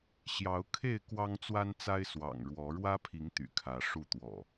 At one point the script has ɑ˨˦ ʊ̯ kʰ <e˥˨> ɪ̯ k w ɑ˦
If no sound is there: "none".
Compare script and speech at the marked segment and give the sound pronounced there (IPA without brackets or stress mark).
e˥˨